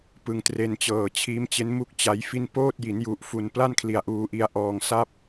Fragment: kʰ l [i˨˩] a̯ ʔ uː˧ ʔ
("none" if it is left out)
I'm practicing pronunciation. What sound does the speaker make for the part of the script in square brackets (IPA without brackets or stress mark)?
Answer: i˨˩